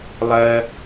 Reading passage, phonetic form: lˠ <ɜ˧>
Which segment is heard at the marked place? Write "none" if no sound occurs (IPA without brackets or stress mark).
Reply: ɜ˧